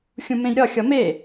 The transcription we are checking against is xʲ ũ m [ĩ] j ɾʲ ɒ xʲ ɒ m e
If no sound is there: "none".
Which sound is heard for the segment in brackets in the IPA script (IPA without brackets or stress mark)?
ẽ